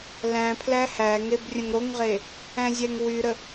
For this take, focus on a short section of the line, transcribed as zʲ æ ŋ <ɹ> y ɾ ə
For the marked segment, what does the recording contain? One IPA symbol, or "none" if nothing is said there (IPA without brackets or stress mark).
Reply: w